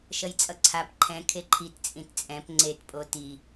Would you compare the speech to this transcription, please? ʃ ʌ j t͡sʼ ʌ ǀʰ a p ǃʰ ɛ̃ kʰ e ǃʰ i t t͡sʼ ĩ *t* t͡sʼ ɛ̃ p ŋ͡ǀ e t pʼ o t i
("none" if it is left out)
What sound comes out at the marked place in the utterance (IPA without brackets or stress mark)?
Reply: t